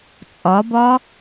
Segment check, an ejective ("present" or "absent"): present